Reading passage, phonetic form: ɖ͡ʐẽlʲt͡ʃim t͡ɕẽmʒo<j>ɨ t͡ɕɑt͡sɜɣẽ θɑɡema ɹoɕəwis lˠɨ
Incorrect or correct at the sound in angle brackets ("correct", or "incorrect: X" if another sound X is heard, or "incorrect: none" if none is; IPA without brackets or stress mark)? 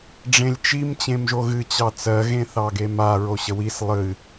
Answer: incorrect: ɣ